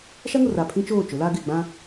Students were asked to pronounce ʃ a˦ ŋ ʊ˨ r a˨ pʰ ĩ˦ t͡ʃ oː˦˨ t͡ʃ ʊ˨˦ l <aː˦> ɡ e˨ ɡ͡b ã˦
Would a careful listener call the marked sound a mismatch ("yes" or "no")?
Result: no